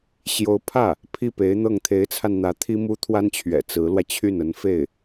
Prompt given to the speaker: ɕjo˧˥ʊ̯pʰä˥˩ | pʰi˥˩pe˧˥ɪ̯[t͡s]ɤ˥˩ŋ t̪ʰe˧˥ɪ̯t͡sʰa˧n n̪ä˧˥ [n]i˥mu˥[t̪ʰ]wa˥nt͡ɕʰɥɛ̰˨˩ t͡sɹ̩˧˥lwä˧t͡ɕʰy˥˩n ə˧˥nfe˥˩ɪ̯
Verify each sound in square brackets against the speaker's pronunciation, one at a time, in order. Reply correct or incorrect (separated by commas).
incorrect, incorrect, correct